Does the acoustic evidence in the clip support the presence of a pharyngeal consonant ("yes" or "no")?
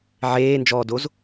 yes